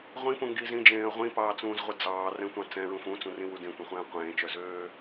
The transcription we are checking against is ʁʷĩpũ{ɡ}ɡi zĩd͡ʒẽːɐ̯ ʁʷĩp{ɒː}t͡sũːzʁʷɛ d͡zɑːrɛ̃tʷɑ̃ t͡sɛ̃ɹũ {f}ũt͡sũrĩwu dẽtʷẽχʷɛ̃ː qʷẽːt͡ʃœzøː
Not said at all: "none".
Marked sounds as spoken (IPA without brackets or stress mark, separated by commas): ŋ, ɑː, f